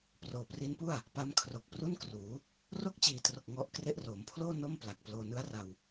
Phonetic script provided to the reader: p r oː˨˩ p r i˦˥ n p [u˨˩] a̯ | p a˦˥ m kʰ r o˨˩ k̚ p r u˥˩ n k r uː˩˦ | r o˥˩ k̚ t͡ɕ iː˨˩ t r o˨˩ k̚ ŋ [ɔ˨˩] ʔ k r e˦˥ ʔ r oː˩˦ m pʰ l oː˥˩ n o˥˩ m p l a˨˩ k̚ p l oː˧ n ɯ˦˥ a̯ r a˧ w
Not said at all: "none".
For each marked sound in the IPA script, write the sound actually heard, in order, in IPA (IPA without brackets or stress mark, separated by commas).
u˥˩, ɔ˦˥